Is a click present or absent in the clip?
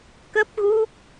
absent